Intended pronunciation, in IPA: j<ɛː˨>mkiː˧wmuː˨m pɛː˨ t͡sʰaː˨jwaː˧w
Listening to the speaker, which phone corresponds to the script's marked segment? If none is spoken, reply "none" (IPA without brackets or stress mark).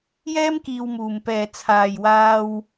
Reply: ɛː˥